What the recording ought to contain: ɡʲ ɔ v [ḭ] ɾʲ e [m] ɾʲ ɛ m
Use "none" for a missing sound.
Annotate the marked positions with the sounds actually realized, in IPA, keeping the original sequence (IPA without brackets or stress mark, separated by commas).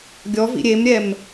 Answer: ḭ, m